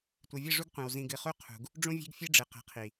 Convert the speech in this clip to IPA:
tʷ ɨ˨ vʲ ɨ˦˨ ʐ u˦ ɡ qʷ ĩ˨ w z ĩ˨ ɡ ɨ˨ χ u˦ qʰ ṳ˨ ɡ | ɖ͡ʐ ũ˦ vʲ e̤˦ ɡ fʲ e˦ ɖ͡ʐ ɨ˨ q e̤˨ qʰ i˨

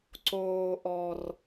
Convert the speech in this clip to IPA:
ǀ oː˨ ʔ ɔ˨ r

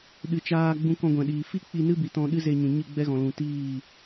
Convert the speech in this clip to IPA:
ɗ ɨ˨ t͡ʃ aː˧ ɡ͡b ũ˧ k ɔ̃˧ ɡʷ ɛ̃˨ ɗ iː˨ f i˦ k͡p i˧ n ɨ˦ b i˨ t ɔ̃˧ ɗ ɨ˦ z e˧ ɲ ũ˨ ɲ ɨ˦˨ ɡ͡b ɛ˦ ɣ ɔ̃˨ l ũ˨ t iː˦˨

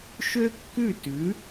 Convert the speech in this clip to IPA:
ʃ ø˥ kː ʉ˥˩ t ʉ˩˥

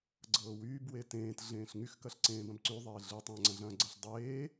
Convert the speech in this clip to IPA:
ɡ͡ǀ ɤː w yː b w e t ẽː t ɮ ẽː ɬ ŋ y x k ɐ ɬ ǀ ẽː b ɐ̃ b ǀ y ðˤ eː ɮ ɯ tˤ ɐ̃ː ŋ͡ǀ ɐ̃ ɮ ɐ̃ː ɡ͡ǀ ɤ ɬ dˤ eː

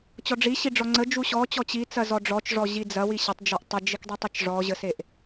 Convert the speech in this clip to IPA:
t͡ɕ ɔ ɖ͡ʐ i ɕ i ɖ͡ʐ ɔ ŋ͡ǀ ə d͡ʒ u ɕ ɔ t͡ɕ ɔ t͡ɕ i t͡s ɐ z ɔ ɖ͡ʐ ɔ t͡ʃ ʐ ɔ ʑ i d͡z ɐ w i ɕ ɐ tˤ d͡ʒ ɔ ʔ tˤ ə d͡ʒ i k dˤ i tˤ ɐ t͡ʃ ʐ ɔ ʑ ə s e ʔ

